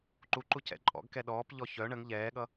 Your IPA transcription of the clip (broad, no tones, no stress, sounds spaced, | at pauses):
ǃ u ǃ u c ɛ̰ ǃʼ ɔ̰ ɡ k ɛ ɗ ɔː p ʎ ɔ ç œ ɳ ə ŋ ʎ ɛː ɠ ʌ